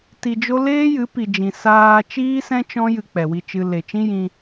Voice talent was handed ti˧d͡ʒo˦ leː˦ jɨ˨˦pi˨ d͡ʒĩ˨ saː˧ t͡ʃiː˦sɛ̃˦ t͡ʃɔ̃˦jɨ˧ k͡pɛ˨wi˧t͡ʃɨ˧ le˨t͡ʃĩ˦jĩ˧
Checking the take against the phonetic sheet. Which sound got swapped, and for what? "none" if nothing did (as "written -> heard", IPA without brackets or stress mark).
none